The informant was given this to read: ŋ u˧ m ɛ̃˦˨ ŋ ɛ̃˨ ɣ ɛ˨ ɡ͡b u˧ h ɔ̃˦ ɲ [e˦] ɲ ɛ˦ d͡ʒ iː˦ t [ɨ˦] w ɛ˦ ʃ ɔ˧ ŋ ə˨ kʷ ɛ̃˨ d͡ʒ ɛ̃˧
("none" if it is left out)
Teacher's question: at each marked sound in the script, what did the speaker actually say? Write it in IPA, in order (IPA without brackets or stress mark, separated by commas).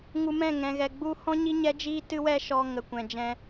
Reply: i˦, ɨ˦